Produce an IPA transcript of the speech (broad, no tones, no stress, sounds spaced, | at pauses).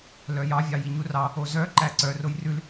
l œ j ɑ vʲ ɑ j i ɲ u r ɑ | o z œ ǃ æ ǀ œ r o j r ʉ l